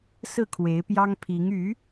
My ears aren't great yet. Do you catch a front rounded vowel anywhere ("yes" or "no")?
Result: yes